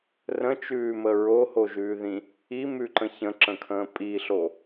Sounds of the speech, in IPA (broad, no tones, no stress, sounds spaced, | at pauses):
r ə̃ t͡ʃ ʉː m ə ɹ o h o ʒ ʉː ð ĩ | i m ʉ ǃ ə̃ ç ə̃ ǁ ə̃ kʰ ə̃ː pʼ i ɬ o